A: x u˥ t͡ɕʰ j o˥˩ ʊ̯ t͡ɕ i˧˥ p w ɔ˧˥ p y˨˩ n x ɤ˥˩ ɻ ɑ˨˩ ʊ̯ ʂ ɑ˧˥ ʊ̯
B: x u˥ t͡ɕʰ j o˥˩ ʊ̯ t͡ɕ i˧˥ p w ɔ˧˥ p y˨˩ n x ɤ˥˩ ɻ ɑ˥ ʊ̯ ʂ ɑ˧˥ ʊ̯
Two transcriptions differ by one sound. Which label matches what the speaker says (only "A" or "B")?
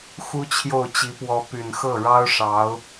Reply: B